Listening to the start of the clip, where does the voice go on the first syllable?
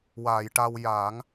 low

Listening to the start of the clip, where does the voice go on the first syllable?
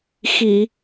low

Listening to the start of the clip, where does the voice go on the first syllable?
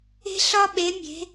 high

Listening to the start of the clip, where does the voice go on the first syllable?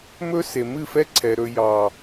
high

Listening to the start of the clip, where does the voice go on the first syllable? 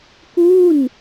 falling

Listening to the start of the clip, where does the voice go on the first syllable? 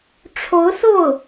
rising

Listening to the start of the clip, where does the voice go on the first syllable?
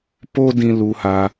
high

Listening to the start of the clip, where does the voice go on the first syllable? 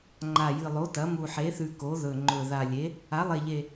low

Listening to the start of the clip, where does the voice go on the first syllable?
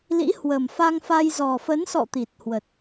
rising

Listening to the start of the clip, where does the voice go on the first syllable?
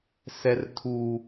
high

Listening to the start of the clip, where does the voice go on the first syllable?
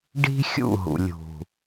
high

